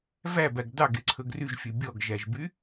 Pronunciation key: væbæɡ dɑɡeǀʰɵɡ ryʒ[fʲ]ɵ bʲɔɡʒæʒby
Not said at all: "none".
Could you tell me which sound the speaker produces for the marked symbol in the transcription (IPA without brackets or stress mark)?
fʲ